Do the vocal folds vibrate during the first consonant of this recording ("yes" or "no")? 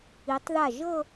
no